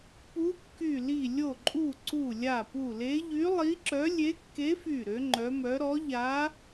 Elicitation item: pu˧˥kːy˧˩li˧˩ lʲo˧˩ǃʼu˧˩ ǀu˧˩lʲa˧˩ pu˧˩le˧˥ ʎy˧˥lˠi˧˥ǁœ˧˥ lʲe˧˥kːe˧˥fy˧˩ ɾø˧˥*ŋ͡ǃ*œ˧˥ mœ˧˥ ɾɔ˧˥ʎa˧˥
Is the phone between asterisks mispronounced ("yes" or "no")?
no